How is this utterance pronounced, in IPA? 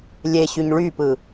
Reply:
lʲ e ɕ y ɲ ɭ y p ɯ

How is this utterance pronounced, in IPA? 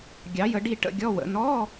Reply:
ɡʲ ɑ˨˦ j ə˨˦ ɖ i˦˨ ʈ ə̰˧˥˧ ɡʲ ɔ˧˥˧ w ə̰˨˦ n ɔ˧˥˧

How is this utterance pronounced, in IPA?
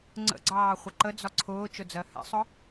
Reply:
ŋ͡ǀ ə̰ ɡ͡ǀ ɑː χʷ ə ǃ ə d͡z ɒ ǀʰ ʊː t͡ʃ ʊ d͡z ɜ h ɛ̰ sˤ ʊ

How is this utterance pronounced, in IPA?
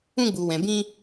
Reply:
ũ˧ ɡ͡b u˨ w ɛ̃˨ b ĩ˧

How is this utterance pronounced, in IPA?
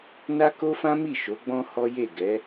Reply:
n a˦ k o˦ f ã˦ m i˦˨ ʃ o˨˦ ɡ͡b ɔ̃˦ h ɔ˦ j e˦˨ ɡ ɛ˨˦

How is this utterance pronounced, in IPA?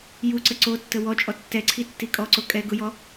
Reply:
j u ǀ ə ǀ o tː ə w ɔ t͡ʃʼ ɔ tː ɛ ǀʰ i tː i kʼ ɔ ǀ o kʼ ɛ ɡ ʊ j ɔ

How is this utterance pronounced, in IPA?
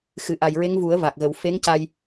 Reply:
x ɨ˨˩˨ ʔ a˨˩ j ɹ e˧˥ ŋ v u˨˩˦ ə̯ v a˨˩ k̚ ɣ ə˨˩˦ w f e˧˥ ŋ c a˧ j

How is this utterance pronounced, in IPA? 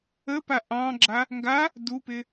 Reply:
ə p a ʔ ɑ̃ ɡ͡ǁ a | ŋ ɡ a | d u p ɪ

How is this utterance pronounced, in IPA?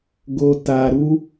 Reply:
ɡ o˦ t a˧ ɾ u˦

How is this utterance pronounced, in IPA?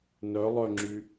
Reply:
n œ lˠ œ ŋ͡ǁ y

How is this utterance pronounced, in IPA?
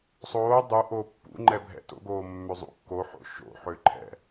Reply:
sˤ oː dˤ u ʔ oː pː ṵ ŋ͡ǃ ɛ bʱ ɛ̰ t o̰ ɡ oː mː ø zˤ ṵ kː o ħ o̰ ʃ o̰ ħ ø ǃʰ ɛ̰

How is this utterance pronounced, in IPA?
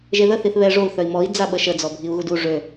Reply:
ʒ e ð ə θ i θ β ɛ ʐ o u̯ θ œ i̯ m ɔ i̯ d͡z a ɓ ə ʃ ə d͡z ɔ bʱ i u̯ ɣ u d u ʐ ø

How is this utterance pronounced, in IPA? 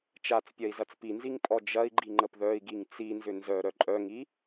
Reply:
t͡ʃ a t͡s pʲ ɐ i̯ z ɐ t͡s p i n z i ŋ pʼ ɔ d͡ʒ ɐ i̯ ɡ͡ǃ i ŋ͡ǃ ə p ð œ i̯ ɡ i ŋ t͡s i n z ʏ n z œ ɾ œ ǃʼ œ ŋ i

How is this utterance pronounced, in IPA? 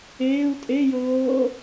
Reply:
eː u̯ tʼ e j ɤː

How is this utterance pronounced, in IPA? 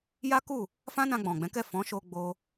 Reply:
j a˦ k u˦˨ | f ã˦ n ã˧ ɡ͡b ɔ̃˨ ɡ͡b ɛ̃˨˦ k ɛ˦˨ f ɔ̃˨˦ ʃ o˧ ɡ͡b o˧

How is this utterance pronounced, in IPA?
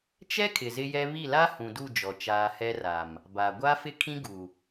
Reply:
t͡ʃ ɛ˦ kʰ ɪ˨ z ɪ˦ j ɛ˦ β i˦˨ l a˦ h ũ˨ d u˦˨ d͡ʒ ɔ˨ t͡ʃ aː˨ h ɛ˦ r a˨ m | b a˨ ɡʷ a˦ f ɪ˦ kʰ ĩ˦ ɡ u˨

